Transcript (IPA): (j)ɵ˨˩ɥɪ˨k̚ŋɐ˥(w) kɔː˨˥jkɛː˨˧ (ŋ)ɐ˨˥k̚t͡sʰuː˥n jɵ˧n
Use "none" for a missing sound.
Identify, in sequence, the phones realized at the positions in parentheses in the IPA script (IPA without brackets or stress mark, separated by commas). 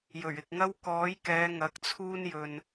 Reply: j, w, ŋ